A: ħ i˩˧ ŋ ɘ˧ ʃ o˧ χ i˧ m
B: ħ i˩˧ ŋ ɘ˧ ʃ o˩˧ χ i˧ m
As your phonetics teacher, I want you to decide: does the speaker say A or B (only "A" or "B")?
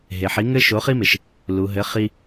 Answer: B